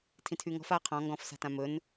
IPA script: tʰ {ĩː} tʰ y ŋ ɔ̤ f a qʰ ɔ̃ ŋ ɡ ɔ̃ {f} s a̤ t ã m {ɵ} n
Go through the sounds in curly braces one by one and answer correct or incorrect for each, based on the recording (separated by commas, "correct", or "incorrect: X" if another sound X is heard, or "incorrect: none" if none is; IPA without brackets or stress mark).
incorrect: ĩ, correct, correct